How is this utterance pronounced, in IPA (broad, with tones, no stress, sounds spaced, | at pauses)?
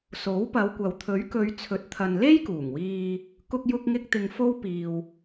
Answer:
s o˨˥ w p ɐ˨˧ w kʷ ɐ˨ w t̪ʰ ɵ˨˥ ɥ k ɵ˨˧ ɥ t͡sʰ ɵ˨˥ t̚ t̪ʰ ɐ˨ n l e˥ j k uː˨˩ ŋ w iː˧ | k ʊ˧ k̚ j ʊ˧ k̚ ŋ ɪ˧ k̚ t̪ ɪ˨ ŋ f o˥ w p iː˨ w